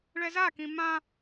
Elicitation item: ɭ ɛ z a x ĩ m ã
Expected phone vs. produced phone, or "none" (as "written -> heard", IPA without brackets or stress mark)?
x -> k